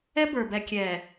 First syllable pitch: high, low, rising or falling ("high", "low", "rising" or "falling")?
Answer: high